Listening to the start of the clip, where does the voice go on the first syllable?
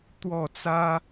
falling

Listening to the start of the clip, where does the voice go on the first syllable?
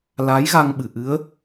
rising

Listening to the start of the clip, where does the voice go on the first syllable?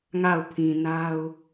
falling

